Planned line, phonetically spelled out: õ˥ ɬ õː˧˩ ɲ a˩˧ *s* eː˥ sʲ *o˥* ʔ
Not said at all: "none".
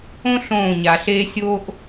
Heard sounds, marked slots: ɬ, o˥

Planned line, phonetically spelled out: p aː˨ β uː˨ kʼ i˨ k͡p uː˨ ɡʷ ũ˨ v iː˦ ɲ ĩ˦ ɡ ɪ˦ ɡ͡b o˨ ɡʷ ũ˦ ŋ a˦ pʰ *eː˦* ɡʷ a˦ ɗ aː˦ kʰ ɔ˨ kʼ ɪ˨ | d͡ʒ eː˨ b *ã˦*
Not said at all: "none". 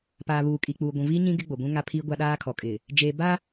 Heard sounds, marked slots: iː˦, a˦

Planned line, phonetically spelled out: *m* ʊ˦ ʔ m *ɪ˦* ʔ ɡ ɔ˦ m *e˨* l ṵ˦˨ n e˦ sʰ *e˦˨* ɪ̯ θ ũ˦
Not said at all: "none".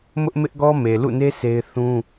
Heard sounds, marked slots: m, ɪ˦, e˨, e˦

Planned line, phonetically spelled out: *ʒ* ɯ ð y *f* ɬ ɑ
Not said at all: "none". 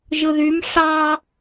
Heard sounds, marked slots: ʒ, m

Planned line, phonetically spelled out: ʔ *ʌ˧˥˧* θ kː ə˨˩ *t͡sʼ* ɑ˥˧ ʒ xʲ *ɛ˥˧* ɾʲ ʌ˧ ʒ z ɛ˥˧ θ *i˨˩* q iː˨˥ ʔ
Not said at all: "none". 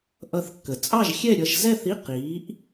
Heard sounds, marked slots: ʌ˧, t͡sʼ, ɛ˥˧, i˧˥˧

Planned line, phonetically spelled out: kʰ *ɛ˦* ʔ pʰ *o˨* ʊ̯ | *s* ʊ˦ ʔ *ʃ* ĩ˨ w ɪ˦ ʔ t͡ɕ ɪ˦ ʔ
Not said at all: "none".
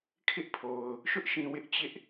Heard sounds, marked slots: ɪ˦, o˨, ʃ, ʃ

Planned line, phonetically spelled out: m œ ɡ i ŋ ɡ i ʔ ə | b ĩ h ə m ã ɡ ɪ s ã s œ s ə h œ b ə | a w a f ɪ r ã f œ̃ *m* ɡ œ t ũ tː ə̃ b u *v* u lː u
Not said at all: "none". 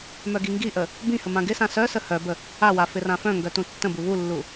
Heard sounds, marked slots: ŋ, β

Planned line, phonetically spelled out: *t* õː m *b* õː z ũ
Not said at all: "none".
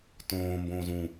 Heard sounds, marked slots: t, b

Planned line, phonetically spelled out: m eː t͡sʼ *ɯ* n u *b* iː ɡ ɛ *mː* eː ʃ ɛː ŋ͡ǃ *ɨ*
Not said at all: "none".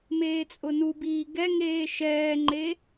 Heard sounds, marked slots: ʊ, b, ŋ, e

